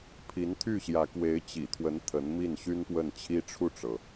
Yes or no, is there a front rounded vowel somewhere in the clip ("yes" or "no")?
yes